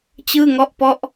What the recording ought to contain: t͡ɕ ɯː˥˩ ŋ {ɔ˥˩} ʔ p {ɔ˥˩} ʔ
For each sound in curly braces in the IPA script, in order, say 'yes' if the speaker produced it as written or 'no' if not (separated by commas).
yes, yes